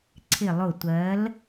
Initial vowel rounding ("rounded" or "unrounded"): unrounded